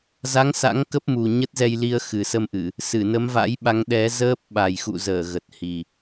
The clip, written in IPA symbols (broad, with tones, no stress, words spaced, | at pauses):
za˨˦ŋ sa̰˧˥ŋkə˦˥p̚ mu˨˩ ɲə˦˥t̚zɛ˧jli˧ə̯ xɨ˨˩sə˧mʔɨ˧˩˨ | sɨ˧˩nə˨˦mva̰˧˥jɓa˨˦ŋ ɗɛ˨˦zəː˦˥p̚ ɓa˨˩jxṵ˧˨zəː˧˩ ɣə˨˩t̚hi˨˩